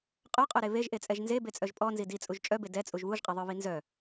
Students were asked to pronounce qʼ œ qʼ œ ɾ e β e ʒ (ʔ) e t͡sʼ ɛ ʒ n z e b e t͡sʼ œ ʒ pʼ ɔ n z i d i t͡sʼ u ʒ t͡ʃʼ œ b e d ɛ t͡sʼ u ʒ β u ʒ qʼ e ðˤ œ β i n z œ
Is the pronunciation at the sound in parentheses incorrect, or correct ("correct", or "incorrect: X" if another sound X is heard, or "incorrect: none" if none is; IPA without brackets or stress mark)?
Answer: correct